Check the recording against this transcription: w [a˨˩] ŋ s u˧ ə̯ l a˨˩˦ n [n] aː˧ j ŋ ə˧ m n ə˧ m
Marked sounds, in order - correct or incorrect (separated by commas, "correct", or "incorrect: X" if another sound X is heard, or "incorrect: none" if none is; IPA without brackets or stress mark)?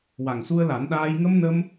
correct, incorrect: ɗ